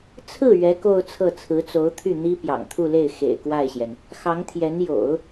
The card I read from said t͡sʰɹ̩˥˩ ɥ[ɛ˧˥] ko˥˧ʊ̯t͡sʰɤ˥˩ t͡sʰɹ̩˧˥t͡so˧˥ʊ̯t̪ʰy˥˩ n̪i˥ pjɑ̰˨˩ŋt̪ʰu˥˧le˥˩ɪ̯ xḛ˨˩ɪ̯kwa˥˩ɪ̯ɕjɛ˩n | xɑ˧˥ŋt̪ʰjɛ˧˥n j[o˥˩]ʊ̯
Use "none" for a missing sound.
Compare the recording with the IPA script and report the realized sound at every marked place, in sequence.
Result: ɛ˧˥, o̰˨˩˦

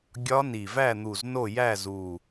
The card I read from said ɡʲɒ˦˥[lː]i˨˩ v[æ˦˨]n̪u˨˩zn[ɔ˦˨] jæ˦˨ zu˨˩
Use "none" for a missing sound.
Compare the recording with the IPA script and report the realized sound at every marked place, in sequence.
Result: n, æ˦˨, o˦˨

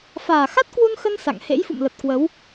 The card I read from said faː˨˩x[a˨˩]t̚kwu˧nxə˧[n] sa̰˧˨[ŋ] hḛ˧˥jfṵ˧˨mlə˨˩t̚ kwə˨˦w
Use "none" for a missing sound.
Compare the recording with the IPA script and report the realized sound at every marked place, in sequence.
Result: a˦˥, n, ŋ

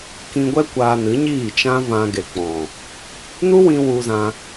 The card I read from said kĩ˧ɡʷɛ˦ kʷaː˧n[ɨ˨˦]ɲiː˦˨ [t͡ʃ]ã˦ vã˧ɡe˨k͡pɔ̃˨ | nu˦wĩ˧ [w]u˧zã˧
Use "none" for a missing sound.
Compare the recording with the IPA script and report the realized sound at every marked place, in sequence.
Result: ɨ˨˦, t͡ʃ, w

